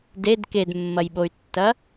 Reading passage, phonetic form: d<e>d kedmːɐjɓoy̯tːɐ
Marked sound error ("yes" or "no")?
no